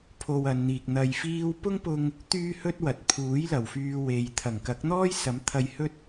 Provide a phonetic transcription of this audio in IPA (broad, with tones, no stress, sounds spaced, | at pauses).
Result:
pʰ o˧ w ɐ˨˧ n n̪ iː˨ k̚ n̪ ɐ˧ j f iː˥ w p ʊ˥ ŋ p ʊ˧ ŋ | t̪ yː˥ h ɵ˥ t̚ w ɐ˨ t̚ pʰ uː˨˥ j l ɐ˨˩ w f yː˧ w e˨ j t̪ʰ ɐ˨˩ ŋ k ɐ˨˥ k̚ n̪ ɔː˥ j s ɐ˨˥ m t̪ʰ ɐ˧ j h ɵ˥ t̚